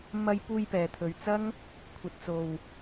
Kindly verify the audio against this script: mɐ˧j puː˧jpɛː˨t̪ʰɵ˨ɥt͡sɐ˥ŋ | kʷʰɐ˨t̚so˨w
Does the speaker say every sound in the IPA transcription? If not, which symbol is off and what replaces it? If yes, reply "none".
s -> t͡s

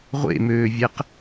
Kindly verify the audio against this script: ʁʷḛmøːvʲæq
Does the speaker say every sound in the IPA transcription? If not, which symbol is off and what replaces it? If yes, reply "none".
none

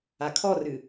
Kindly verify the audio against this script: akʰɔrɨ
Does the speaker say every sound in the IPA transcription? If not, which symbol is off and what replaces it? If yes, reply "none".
none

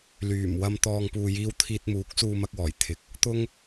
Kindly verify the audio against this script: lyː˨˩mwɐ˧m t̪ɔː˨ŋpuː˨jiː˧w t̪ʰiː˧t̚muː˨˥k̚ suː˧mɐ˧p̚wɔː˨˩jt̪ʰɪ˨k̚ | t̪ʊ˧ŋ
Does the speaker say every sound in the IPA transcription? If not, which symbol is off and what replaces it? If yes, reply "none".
p̚ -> k̚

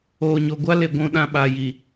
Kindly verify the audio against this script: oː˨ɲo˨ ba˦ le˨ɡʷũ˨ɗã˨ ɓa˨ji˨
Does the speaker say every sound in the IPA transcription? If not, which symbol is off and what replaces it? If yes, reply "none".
b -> ɡʷ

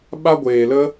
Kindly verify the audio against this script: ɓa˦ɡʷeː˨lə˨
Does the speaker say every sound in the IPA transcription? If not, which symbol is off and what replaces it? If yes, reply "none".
ə˨ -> ə˦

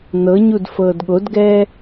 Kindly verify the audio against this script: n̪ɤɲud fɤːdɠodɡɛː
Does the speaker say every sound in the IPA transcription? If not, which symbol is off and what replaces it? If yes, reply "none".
none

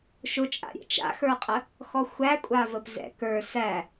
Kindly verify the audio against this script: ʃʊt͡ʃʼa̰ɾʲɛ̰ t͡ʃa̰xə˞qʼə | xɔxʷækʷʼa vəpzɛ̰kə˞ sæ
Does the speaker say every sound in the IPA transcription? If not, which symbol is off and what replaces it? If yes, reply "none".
none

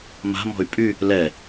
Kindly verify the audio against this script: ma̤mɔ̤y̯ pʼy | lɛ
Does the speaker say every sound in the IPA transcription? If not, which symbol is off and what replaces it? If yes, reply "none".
none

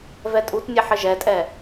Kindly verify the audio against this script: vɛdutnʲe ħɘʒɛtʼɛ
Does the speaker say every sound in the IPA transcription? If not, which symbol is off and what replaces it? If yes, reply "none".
d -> tʼ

